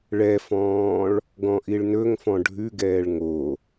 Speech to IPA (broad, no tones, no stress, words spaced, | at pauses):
ɭɛfɔ̃ːɭ | ɡɔ̃ʔiɭnɵŋfɔ̃ ɖʱʉɡɛːɭ ŋo